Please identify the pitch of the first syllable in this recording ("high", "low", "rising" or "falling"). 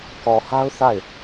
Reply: low